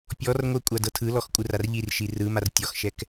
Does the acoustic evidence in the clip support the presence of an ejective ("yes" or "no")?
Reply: yes